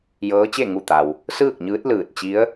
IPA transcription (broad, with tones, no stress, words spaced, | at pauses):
jɤː˧˥t͡ɕe˥˨ ŋu˧˩t̪a˩w | sɯː˥˨k̚ɲɯː˧˥t̚ lɯː˧˩t̚ t͡ɕi˧˥ə̯